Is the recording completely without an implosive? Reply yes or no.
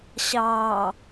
yes